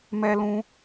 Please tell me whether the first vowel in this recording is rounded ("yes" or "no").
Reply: no